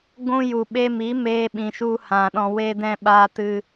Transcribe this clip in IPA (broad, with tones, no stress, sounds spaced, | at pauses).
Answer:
ɡʷ ũ˧ j u˨ ɓ e˧ m i˨˦ m eː˧ ɓ ĩ˨ ʃ u˧ h ã˨ ɗ ɔ̃˧ w e˦ d ɛ̃˦ ɓ aː˧ t ɨ˧